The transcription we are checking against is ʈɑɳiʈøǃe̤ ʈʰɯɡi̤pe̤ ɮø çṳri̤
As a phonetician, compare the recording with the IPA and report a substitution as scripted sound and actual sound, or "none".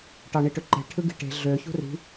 p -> ʈ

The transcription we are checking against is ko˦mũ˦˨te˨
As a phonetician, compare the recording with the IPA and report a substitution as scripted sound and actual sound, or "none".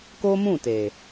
none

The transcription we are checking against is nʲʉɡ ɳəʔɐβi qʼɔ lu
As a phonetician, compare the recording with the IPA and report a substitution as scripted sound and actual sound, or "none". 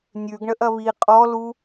none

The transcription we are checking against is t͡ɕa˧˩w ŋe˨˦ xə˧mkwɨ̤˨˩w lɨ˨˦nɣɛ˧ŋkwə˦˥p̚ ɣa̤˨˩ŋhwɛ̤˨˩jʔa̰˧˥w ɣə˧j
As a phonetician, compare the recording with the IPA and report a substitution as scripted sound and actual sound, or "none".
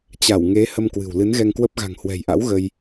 x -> h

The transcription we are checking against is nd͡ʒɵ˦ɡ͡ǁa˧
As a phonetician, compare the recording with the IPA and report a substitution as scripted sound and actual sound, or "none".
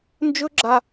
none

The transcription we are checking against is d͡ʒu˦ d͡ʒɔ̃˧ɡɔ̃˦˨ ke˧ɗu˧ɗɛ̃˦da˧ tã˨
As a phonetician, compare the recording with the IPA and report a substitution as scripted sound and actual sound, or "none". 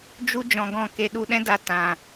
none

